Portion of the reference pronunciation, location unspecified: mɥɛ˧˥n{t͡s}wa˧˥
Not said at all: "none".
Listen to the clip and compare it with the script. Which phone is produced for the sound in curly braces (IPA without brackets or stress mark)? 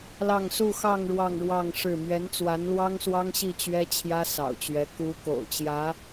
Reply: t͡s